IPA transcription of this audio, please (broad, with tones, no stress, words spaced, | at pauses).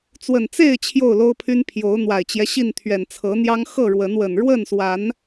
t͡swə˨˩nt͡se˥˨ɪ̯ t͡ɕʰjo˥˨ʊ̯lo˦ʊ̯pʰy˦n pʰjo˨˦ʊ̯n̪wa˨˩ɪ̯t͡ɕjɛ˦ɕi˥˨n t̪ʰɥɛ˨˩nt͡sʰɤ˨˦n̪jɑ˦ŋ xɤ˥˨ɻwə˨˦nwə˨˩n ɻwə˥˨nswa˨˦n